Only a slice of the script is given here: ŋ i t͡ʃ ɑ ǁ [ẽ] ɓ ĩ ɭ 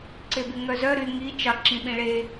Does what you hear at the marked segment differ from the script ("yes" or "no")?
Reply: yes